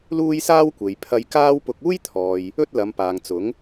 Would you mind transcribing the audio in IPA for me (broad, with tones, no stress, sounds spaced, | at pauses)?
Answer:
l uː˥ j s aː˥ w kʷ e˨ j pʰ ɐ˧ j k aː˥ w p ʊ˧ k̚ uː˥ j t̪ʰ ɔː˨ j | ɵ˥ t̚ l ɐ˨˧ m p aː˨ ŋ t͡s ʊ˨˥ ŋ